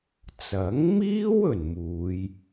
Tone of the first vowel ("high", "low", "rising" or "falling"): rising